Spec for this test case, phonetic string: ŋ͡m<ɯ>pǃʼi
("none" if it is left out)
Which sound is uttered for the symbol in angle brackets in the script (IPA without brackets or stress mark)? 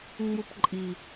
u